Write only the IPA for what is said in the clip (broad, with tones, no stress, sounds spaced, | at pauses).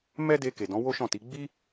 m ɛ˦ d e˧ k e˨ d ɔ̃˨˦ w o˦ ʃ ɔ̃˦˨ t i˨˦ ɡ͡b i˦